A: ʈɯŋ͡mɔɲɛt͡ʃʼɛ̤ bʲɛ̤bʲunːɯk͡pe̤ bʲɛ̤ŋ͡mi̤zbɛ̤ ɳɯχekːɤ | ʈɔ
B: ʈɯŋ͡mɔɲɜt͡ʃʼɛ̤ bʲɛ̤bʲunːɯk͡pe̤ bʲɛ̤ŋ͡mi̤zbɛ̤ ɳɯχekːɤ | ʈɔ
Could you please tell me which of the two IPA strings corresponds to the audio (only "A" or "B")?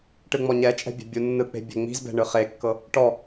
A